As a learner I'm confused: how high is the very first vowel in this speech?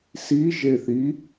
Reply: high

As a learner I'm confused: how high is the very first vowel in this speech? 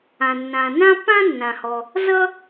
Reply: low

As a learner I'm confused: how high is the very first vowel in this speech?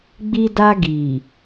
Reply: high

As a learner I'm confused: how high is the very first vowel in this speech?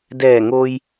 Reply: mid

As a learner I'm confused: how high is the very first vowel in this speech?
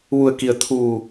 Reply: high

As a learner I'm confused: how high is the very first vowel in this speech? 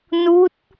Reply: high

